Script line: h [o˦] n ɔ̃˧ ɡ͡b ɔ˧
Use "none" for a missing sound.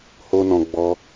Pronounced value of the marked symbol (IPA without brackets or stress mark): o˦